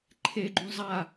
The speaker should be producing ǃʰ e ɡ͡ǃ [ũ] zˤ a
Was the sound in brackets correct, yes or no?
yes